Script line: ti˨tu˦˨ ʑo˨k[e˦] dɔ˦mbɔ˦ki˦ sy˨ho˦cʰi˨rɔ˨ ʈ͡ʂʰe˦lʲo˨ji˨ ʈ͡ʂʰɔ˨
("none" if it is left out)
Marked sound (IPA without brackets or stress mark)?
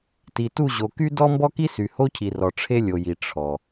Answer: y˦